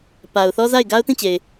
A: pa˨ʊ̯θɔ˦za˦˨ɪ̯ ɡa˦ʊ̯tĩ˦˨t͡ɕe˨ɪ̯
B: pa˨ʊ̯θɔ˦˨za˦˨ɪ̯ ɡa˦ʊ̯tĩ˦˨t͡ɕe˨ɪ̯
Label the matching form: A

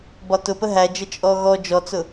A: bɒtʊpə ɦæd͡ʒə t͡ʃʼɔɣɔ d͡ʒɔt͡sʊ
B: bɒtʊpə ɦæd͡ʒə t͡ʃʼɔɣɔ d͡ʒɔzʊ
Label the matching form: A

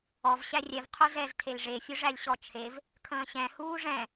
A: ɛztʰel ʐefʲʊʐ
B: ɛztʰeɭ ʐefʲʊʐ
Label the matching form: A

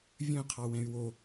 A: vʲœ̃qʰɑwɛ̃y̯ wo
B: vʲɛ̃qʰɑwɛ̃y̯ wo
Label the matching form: A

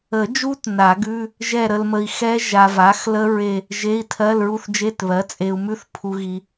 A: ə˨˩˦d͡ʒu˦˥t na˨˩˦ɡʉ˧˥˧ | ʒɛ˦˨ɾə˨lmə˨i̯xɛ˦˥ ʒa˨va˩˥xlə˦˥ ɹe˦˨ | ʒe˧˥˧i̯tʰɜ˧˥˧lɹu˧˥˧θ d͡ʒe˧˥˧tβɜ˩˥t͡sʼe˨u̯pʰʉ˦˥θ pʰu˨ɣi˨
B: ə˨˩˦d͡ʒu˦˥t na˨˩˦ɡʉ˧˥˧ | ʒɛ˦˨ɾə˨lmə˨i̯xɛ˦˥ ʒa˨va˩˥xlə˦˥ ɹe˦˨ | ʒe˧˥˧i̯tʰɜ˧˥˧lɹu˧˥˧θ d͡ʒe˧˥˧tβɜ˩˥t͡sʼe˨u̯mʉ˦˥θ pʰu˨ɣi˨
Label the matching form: B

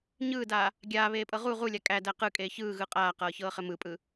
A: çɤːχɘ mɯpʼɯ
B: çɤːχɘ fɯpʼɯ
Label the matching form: A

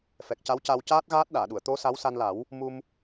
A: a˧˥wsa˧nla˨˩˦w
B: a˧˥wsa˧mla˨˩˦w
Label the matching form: A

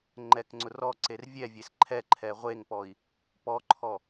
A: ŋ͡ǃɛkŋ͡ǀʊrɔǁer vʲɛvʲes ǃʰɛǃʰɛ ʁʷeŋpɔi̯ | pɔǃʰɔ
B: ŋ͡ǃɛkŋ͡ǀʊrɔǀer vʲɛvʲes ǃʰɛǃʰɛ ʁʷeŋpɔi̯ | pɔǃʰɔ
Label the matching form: B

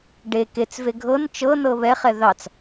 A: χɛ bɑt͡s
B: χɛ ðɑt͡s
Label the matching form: B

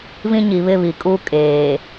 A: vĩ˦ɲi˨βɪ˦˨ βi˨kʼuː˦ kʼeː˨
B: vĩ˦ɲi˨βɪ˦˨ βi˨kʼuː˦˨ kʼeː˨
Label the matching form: A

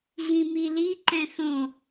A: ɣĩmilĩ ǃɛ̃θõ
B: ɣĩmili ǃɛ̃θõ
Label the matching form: B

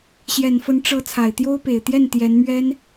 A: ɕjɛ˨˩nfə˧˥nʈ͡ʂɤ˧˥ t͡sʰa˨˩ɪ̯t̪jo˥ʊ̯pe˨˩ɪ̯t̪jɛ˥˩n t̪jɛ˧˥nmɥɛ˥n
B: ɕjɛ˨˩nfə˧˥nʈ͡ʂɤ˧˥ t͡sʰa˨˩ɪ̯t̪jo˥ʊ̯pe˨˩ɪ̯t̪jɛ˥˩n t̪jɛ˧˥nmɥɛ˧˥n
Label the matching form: A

